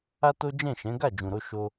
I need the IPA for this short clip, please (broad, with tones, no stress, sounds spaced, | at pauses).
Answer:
a˦ t o˦ d͡ʒ ɛ̃˦˨ ʃ ɛ̃˨˦ ɡ a˦˨ d͡ʒ ũ˨ ɾ o˧ ʃ o˦